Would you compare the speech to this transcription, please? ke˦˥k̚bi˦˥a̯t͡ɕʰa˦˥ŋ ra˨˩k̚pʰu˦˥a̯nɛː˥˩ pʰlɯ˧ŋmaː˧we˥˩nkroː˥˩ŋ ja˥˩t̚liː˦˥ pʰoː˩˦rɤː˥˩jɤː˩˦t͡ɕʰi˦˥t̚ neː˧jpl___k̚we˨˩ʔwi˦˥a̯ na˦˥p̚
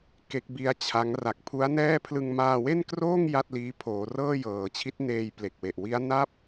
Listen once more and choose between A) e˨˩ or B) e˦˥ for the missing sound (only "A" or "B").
A